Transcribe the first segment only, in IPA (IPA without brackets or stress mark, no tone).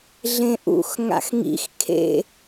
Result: ɮ